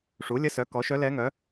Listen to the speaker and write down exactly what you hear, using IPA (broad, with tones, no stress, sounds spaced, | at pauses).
ʂ u˩˥ lʲ ə˧˥ s œ˩˥ k ɔ˩˥ ʃ œ˧˥ l ɛ˧˥ ŋ œ˩˥